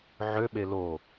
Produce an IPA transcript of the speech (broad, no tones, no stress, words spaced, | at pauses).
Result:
ʕøɓe lo